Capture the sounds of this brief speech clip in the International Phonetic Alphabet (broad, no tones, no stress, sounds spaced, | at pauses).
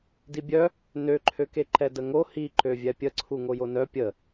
d i bʲ œ | n ø ǃʰ ø k e ǃ ɛ d ə ŋ o h i ǃ ø vʲ ɛ pʲ ə ǀʰ u ŋ o j o n œ pʲ ə